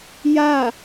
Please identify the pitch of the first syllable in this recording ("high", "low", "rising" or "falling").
falling